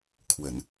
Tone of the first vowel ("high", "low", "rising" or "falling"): low